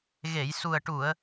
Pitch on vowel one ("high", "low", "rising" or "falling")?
low